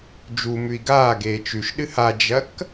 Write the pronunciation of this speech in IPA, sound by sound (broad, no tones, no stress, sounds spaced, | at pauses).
d͡ʒ u m ʉ i̯ ɡ aː ɡ eː t͡ʃ ʉ ʃ ɗ ɨ h a d͡ʒ ɐ k